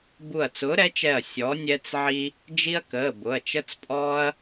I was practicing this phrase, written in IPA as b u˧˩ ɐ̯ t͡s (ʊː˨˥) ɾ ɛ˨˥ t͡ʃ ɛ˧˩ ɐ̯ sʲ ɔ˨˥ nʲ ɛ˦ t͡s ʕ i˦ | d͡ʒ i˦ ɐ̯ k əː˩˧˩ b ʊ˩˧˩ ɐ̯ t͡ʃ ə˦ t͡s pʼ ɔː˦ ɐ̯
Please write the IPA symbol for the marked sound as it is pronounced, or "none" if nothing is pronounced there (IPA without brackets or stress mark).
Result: ʊː˨˥